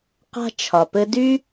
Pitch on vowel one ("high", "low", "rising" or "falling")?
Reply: high